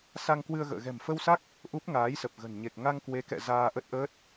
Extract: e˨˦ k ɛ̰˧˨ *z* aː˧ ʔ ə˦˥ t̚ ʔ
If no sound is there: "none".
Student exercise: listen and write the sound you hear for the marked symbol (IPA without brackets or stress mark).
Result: z